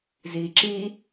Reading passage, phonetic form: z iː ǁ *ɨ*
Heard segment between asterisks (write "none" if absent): i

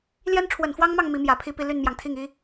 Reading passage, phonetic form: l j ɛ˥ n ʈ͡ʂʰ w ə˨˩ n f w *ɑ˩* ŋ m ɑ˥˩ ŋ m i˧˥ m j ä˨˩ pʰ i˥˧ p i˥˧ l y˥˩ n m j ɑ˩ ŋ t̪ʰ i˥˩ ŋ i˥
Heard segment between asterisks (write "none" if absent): ɑ˥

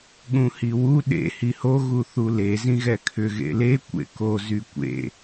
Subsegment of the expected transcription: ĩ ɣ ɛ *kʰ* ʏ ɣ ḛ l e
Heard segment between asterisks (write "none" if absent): kʰ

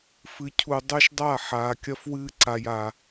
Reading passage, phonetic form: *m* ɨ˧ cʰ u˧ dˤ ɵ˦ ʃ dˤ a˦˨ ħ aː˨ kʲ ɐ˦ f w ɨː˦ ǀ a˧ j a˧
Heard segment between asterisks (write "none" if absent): f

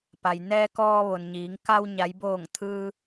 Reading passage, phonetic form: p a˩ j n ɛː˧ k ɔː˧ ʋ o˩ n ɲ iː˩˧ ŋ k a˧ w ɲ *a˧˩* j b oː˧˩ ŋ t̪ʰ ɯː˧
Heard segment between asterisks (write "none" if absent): a˩˧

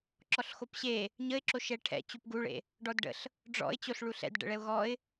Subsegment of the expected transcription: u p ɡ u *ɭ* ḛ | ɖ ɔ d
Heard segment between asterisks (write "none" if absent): ɭ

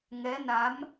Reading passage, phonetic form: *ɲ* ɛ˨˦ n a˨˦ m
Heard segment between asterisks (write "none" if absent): ŋ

